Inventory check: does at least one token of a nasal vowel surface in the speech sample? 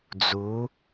no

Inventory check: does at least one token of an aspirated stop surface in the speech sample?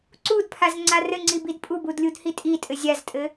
yes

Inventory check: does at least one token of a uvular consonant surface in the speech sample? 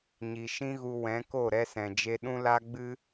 no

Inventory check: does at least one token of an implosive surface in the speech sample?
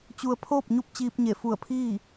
no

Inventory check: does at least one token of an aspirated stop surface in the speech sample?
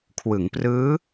yes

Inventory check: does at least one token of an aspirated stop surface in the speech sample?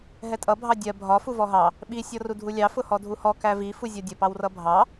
no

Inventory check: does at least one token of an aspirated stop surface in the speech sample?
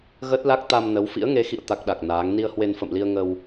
no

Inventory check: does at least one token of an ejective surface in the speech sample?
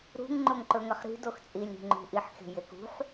yes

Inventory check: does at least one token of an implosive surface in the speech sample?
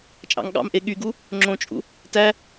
yes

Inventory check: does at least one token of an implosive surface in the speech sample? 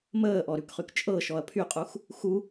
no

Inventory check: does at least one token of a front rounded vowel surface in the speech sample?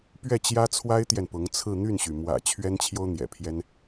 yes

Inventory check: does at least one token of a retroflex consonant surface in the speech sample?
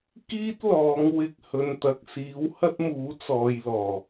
no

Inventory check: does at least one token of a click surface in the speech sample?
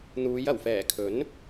no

